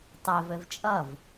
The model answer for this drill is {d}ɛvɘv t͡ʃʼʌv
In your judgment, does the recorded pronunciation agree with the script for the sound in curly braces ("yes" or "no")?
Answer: no